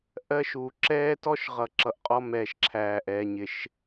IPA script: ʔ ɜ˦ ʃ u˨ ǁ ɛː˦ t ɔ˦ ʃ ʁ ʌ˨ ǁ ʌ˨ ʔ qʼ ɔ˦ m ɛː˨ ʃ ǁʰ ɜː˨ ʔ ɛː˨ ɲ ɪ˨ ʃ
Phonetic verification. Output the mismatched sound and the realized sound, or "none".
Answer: ɜː˨ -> æː˨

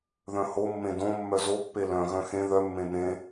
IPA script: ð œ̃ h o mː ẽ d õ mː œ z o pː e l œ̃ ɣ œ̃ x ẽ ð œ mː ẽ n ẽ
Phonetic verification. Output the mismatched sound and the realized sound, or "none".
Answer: none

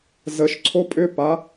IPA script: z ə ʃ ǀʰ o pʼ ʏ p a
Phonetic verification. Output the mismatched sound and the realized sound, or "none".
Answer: none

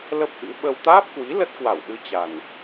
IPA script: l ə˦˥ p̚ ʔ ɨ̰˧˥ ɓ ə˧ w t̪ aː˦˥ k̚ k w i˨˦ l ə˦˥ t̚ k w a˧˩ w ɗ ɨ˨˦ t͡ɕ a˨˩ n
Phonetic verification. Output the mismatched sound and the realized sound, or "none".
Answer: k̚ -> p̚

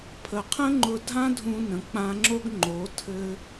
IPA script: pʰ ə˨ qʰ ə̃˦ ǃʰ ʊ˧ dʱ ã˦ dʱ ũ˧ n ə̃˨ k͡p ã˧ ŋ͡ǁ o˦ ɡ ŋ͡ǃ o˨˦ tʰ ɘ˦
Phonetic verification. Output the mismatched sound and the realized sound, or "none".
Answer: ǃʰ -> ŋ͡ǃ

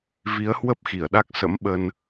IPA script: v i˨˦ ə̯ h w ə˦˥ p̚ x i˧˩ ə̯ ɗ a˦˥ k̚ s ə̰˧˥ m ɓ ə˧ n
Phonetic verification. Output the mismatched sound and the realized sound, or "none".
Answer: none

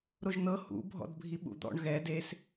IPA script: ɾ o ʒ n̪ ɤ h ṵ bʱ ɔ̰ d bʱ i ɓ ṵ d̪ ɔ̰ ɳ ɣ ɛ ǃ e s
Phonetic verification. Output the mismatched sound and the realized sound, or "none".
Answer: ǃ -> d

